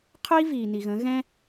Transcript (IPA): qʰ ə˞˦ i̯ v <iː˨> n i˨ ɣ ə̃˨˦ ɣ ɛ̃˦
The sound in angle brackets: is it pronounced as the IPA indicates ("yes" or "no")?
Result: yes